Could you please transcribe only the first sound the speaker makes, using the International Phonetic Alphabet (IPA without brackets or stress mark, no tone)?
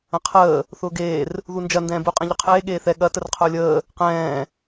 ɐ̃